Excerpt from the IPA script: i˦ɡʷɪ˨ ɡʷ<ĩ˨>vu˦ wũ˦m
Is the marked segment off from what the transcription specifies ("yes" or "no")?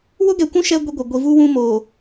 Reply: yes